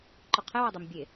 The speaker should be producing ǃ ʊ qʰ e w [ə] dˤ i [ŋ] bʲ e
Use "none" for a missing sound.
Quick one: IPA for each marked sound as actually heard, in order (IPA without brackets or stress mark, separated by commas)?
ə, m